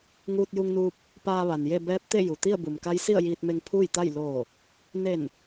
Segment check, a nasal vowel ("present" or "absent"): absent